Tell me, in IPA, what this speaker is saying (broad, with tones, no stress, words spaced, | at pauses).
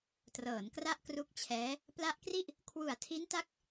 trɤː˩˦nkra˥˩ʔkru˦˥k̚t͡ɕʰɛː˦˥ | pla˦˥ʔkri˥˩ʔ | kʰwu˨˩a̯tʰi˦˥nta˦˥k̚